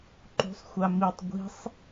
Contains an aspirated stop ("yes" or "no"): no